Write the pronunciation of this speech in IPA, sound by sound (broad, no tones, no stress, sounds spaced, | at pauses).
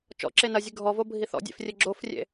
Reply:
t͡ʃ ɔ̰ ǁ e n ɐ zʲ ɨ ɡʱ ɔ v o bʱ i θ ɔ̰ dʲ ḛ f rʲ ɘ ɡ͡ǁ o f rʲ ḛ